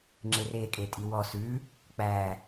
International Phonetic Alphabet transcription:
ŋ͡ǁ e r e kʼ e tʼ i w ɔ s ʉ | k͡p æ

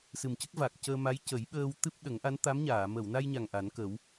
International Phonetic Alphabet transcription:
s ɨ˨˩ m c ə˦˥ k̚ v a˨˩ k̚ c əː˧ m a˧˥ j c ə˨˩˦ j ɓ əː˧ w t̪ ɨ˦˥ p̚ ɗ ə˨˩˦ ŋ ʔ a˧˥ n t̪ a˧˥ m ɲ aː˨˩˨ m ə˨˩˨ w n a˧ j ɲ a˨˩ ŋ ʔ a˨˩˦ n k ə˨˩˦ w

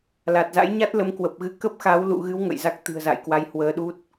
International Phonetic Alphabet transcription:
l a˨˩ t̚ z a̰˧˥ j ɲ a˦˥ t̚ l ə˨˦ m k w ə˨˩ p̚ ɣ ɨ˧ k ə˦˥ p̚ x a˨˦ w l ṵ˧˨ ɣ ɨ˨˦ w ŋ ə̰˧˨ j z a˦˥ k̚ t̪ ɨ̤˨˩ ə̯ z a̰˧˨ j k w a˨˦ j h w əː˧ ɗ u˦˥ t̚

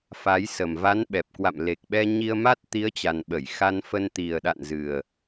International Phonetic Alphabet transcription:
f a˨˦ j s ə˨˩ m v a˨˦ n ɓ ɛ˨˩ p̚ k w a̰˧˨ m l e˨˩ k̚ ɓ ɛ˧ ɲ i˧ ə̯ m a˦˥ t̚ t̪ i˨˦ ə̯ t͡ɕ a˨˩ n ɓ ə˧˩ j x a˧ n f ə˧ n t̪ i˨˩ ə̯ ɗ a̰˧˨ n z ɨ˨˩ ə̯

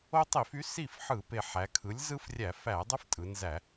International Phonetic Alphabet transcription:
o˦ tˤ i˧˩˧ f y˩˥ s i˥˩ f ħ ɯ˧˩˧ p e˨˩ ħ æ˩˧ kʰ ɯ˩˥ lʲ z ɯ˦ f rʲ æ˧˩˧ f æ˧˩˧ dˤ ø˦ f tʼ ɯ˩˧ n z æ˧˩˧

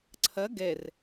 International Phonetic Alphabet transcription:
ǀʰ ɐ ɡ ɛ r

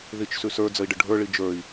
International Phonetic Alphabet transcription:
ð i t͡ʃ s ʉ s ə˞ d͡z ə i̯ ɖ ɘ ɖʱ ə˞ ɭ i d͡ʒ ə˞ i̯

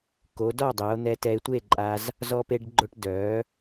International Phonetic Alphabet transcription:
k o˩˧ d ɔ˥˨ dˤ e˩˧ o̯ n̪ ɛ˧ t ɛ˧ e̯ tʷ e˥˨ ǃʼ a˧ z | z ɔ˧ p e˧ ɖ ɡ͡ǃ o˧ ʈ d œ˩˧

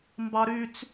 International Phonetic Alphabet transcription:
m b ɑ ɾ y t͡s

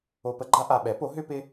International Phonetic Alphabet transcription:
o˧ p ə˥ ɡ͡ǃ a˥ ʔ a˧ ɓ ɛ˩˥ p o˩˥ ɦ ʏ˥ p ɪ˥

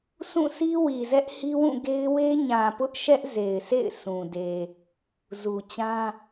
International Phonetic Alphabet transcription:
sʰ ũ˦˨ s i˦ w i˨ z ɛ˦ ʔ h i˦ w ũ˦˨ ɡ e˦ ɪ̯ w e˦ ɲ ã˨ p ʊ˦ ʔ ʃ ɛ˦ ʔ z e˨ ɪ̯ s ḛ˦˨ ɪ̯ sʰ ũ˨ d e˨ | z u˨ t͡ɕ ã˦

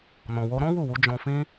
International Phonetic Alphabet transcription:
n ɔ̃˨ w o˧ ɾ ɔ̃˦ w u˦˨ w u˨˦ d͡ʒ ɔ̃˧ f ĩ˦

